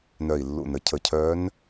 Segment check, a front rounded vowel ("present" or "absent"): present